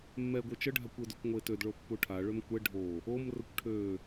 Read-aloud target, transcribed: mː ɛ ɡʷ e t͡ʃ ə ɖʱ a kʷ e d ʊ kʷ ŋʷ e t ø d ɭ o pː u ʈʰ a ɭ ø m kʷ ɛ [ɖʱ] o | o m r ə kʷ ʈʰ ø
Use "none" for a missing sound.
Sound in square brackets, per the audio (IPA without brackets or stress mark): ɖʱ